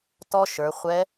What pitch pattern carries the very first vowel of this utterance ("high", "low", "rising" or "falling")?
high